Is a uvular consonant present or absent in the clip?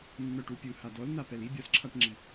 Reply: absent